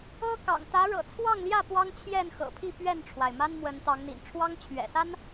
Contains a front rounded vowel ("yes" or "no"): no